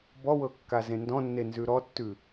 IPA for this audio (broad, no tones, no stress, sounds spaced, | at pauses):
b ɔ w ɤ kː a z ẽ n d ɔ̃ nː e n z ʉ ɾ ɔ tː ʉ